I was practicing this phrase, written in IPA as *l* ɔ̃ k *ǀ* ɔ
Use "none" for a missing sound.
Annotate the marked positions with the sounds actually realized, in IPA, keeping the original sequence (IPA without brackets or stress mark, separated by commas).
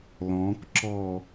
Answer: l, ǁ